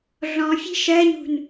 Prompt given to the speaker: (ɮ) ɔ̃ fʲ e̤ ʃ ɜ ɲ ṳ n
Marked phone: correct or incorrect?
correct